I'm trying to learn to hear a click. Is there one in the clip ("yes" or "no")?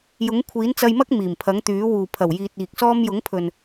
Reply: no